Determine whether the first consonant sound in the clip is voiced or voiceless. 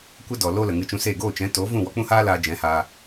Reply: voiceless